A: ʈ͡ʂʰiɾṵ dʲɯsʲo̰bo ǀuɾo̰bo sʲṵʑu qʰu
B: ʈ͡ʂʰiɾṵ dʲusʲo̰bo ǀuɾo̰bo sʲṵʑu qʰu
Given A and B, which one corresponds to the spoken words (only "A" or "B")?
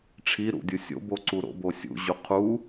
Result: A